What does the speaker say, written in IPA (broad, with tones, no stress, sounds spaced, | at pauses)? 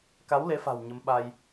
k a˨˦ w l e˨˦ f a̤˨˩ w ɲ ə˨˦ m ɓ a˧ j